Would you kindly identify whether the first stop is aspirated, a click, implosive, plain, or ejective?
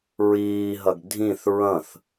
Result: plain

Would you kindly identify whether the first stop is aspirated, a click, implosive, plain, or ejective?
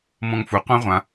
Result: plain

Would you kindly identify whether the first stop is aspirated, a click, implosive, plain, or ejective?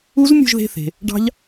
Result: plain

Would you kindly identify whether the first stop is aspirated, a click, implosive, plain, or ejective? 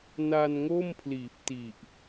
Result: aspirated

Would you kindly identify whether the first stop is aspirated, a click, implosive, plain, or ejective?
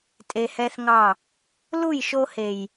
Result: ejective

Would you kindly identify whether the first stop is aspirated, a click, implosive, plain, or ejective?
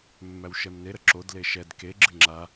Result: click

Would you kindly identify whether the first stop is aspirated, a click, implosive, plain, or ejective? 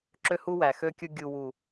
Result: click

